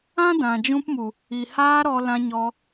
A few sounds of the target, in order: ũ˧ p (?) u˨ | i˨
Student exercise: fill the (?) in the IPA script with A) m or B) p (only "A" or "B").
A